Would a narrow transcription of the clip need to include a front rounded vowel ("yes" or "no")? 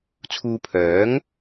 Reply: yes